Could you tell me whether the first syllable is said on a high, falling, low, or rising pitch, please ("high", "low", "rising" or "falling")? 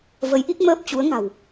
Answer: rising